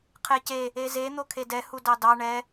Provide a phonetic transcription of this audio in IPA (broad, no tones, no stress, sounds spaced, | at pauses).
qʰ e c e | e z e n̪ o kʰ e d ɛ h u d ɑ d ɑ ɳ ɛ